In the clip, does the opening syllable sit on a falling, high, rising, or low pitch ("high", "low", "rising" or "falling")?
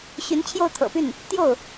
rising